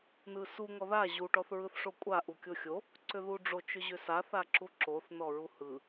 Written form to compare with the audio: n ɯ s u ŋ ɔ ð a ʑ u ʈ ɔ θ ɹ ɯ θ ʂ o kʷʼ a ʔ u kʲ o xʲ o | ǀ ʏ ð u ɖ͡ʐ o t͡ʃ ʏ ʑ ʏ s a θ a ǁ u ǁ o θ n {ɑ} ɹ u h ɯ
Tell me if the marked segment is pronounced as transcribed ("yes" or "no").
no